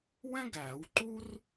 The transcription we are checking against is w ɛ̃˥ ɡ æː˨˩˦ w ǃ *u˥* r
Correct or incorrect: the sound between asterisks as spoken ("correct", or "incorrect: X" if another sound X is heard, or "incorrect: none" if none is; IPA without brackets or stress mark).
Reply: correct